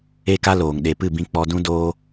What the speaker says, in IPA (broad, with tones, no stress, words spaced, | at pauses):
e˦ka˦loː˨ŋ ɗe˨pɨ˦˨bĩ˧ k͡pɔ˧dũ˦ doː˧